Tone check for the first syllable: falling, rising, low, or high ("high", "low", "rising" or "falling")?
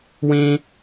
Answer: high